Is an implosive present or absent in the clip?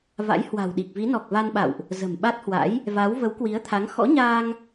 present